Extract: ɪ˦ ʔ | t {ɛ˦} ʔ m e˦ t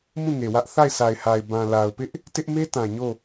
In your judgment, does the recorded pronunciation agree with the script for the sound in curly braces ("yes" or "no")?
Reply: no